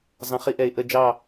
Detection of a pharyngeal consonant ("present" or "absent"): absent